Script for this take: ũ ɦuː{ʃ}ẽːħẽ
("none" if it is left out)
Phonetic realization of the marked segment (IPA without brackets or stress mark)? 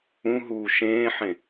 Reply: ʃ